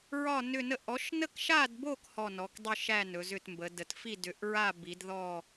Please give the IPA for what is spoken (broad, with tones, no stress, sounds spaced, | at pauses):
ɹ ɒ˥˧ n ʏ˥˧ n ə˥˧ ʔ ɔ˨˦ ʃ n ə˥˧ k ʃ a˥˧ d b o˥˧ k h ɔ˥˧ n ɔ˨˦ k dˤ ʏ˥˧ ʃ æ˥˧ n ɵ˨˦ z ʏ˥˧ t m b ə˨˦ d ə˨˦ t f i˥˧ d ʏ˨˦ ʔ ɹ a˥˧ b i˨˦ d ð ɔ˥˧